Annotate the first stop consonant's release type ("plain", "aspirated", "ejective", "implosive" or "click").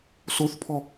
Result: aspirated